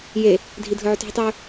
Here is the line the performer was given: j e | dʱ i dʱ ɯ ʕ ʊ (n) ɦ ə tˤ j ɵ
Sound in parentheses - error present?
yes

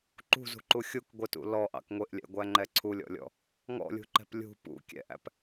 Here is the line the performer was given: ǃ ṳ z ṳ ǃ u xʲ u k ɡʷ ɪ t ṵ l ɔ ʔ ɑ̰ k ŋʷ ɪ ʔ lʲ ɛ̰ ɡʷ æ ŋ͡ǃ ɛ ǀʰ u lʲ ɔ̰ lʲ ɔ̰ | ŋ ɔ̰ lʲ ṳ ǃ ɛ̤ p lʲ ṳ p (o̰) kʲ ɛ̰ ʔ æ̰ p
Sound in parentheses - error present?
yes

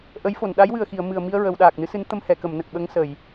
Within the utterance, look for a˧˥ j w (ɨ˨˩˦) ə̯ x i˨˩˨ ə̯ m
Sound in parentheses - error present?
yes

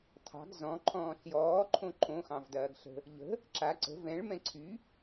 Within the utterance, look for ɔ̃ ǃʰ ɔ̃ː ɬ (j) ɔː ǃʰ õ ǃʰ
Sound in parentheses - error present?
no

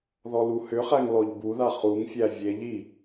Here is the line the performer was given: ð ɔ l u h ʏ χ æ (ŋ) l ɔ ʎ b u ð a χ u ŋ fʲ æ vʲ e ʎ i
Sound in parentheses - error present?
no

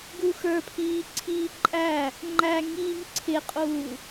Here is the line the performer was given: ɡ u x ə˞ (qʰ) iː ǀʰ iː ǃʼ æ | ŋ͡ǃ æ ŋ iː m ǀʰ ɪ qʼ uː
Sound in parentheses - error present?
yes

